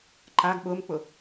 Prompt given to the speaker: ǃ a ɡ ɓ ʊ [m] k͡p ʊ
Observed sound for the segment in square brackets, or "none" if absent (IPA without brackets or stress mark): m